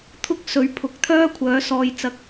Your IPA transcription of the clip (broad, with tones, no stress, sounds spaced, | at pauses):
t̪ʰ ʊ˥ k̚ s ɵ˨˧ ɥ pʰ ʊ˨˥ k̚ t̪ʰ œː˥ kʷʰ œː˨˥ s ɔː˨˧ j t͡s ɐ˨ k̚